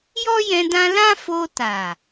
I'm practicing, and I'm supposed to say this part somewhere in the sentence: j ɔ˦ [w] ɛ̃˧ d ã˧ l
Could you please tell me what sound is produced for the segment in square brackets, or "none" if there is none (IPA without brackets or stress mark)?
j